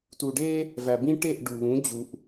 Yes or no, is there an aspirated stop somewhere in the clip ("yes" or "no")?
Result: no